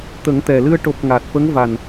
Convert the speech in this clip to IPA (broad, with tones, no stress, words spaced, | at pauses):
t̪ə˨˩˦ŋt̪ɛ˨˩lɨ˧ə̯ ʈo˨˩p̚ ŋa˨˩t̚fə˧˥ŋ va˨˩n